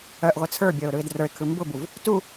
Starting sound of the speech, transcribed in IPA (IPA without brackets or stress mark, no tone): œ